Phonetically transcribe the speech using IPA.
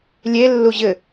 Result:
lʲ e lː u ʑ ɘ

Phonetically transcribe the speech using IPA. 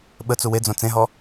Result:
ɓ ə t͡s u w e d͡z õ t͡s ẽ ɦ ɔ

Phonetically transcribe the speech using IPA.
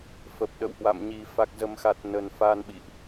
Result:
f ə˨˩ p̚ ɗ ə̰˧˨ w h w a̰˧˨ m ɲ i˨˩ f a˨˩ k̚ z ə˨˩ m x a˨˩ t̚ n ə˨˩ n f a˧ n ɓ ḭ˧˨ ʔ

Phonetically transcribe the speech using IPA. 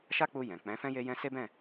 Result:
ʃ a˦ k͡p u˧ j ɛ̃˨ k͡p ɛ̃˨˦ f ɛ̃˦ j e˦ j ɛ̃˦ s e˦ b ɛ̃˦˨

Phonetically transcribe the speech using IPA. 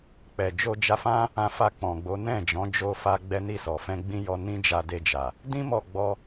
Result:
k͡p ɛ˨ d͡ʒ o˧ d͡ʒ a˧ f ã˦ | ã˧ f a˧ k͡p ɔ̃˨ ɡ͡b o˨˦ n ɛ̃˦˨ d͡ʒ ɔ̃˨˦ d͡ʒ o˧ f a˧ ɡ͡b ɛ˦ n i˦˨ s ɔ˨ f ɛ̃˧ ɡ͡b ĩ˦ j ɔ˧ n ĩ˦ d͡ʒ a˧ d e˧ d͡ʒ a˨ | d ĩ˦ m ɔ˦˨ ɡ͡b ɔ˧

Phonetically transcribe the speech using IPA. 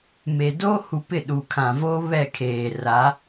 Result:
m e˨ d oː˦ h u˨ p ɪ˦˨ ɗ u˨ kʰ ã˨ v oː˦ β ɛ˦˨ kʰ eː˨ r a˨˦

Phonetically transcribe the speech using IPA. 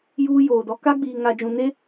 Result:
j uː˦ j oː˨ d ɔ˦ k a˦ ɡ͡b iː˨ ŋ a˨ d͡ʒ ũ˨ n e˦

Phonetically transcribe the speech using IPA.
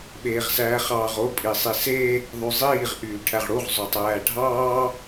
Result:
ɓ eː ʁ s æː χ ɑː ʁ o pʼ i sˤ i s e | ðˤ y zˤ iː ʁ ʔ yː ʈʰ æ ʁ ɽ u ʁ zˤ ø tˤ æː ɖʱ ɑː

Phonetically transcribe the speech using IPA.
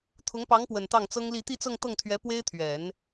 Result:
t̪ʰ ʊ˧˥ ŋ p ɑ˧˥ ŋ p w ə˨˩ n t̪ ɑ˥˩ ŋ t͡s ɤ˥ ŋ l i˥˧ t̪ i˥˧ t͡s ɤ˥˧ ŋ t̪ ɤ˥˩ ŋ t̪ʰ ɥ ɛ˧˥ p w e˥ ɪ̯ t̪ʰ ɥ ɛ˨˩˦ n

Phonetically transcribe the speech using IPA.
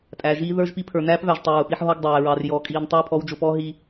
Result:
tʼ æ˨ ʒ iː˦ ð ə˞˦ ʒ p i˦ pʰ ə˞˨ n æː˦ p v æ˨ ʒ tˤ ʊ˨ ɹ ʊ˨ p i˦ ħ ɦ ɔ˦ ɡ dˤ æː˨ ɹ ɑ˨ r j ɔː˨ kʼ iː˨ n tˤ ɑː˦ pʰ ɔ˨˦ w d͡ʒ ʊ˨ p ɔː˦ ɦ i˦

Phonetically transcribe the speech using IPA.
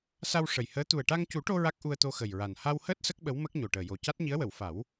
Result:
s a˧ w ʂ ə˨˩ j h əː˧˥ t̪ u˨˩ ə̯ ʈ a˧ ŋ c u˨˩˦ ʈ o˧ ɹ a˦˥ k̚ ʔ u˧ ə̯ t̪ o˧ x ə˨˩ j ɹ a˨˩ n h a˧ w h əː˦˥ t̚ s ə˦˥ k̚ ɓ ə˧˥ w m ə˦˥ k̚ ɲ o˨˩ ʈ əː˨˩ j o˨˩ c a˦˥ t̚ ɲ i˧˥ ə̯ w ə˨˩˨ w f a˨˩˦ w

